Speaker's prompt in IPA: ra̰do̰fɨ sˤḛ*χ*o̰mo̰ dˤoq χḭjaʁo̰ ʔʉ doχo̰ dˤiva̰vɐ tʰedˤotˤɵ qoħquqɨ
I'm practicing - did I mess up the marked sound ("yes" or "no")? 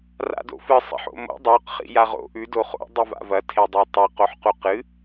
yes